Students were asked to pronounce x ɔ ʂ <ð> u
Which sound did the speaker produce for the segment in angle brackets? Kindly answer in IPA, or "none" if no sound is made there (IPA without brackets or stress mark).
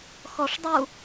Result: dˤ